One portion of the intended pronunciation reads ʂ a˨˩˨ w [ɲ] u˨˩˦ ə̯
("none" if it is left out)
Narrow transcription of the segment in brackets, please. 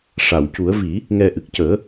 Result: c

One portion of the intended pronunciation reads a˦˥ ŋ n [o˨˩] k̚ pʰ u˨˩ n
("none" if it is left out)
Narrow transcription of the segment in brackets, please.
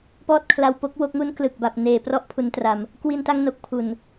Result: o˨˩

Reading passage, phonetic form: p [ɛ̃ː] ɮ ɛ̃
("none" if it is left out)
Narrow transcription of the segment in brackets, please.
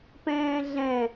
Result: ɛ̃ː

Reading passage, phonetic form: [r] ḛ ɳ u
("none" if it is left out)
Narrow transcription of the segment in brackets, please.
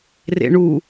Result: r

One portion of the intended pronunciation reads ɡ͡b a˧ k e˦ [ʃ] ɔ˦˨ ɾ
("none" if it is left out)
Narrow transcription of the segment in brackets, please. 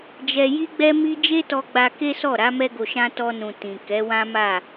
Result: s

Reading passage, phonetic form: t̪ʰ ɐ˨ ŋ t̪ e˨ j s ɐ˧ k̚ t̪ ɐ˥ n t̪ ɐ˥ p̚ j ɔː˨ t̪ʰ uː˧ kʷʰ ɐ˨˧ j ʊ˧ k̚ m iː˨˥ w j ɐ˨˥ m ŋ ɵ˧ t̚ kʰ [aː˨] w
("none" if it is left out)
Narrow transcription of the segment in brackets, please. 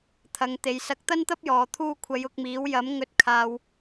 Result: aː˧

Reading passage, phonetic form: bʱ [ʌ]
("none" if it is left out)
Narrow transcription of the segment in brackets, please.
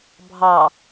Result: ɑ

